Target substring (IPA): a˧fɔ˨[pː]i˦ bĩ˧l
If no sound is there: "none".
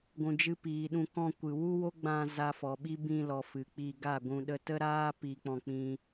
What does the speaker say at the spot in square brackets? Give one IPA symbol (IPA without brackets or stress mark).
ɓ